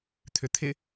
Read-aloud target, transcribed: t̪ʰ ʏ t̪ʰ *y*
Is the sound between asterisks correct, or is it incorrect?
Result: incorrect